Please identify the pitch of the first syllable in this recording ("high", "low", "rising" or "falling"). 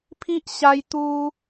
high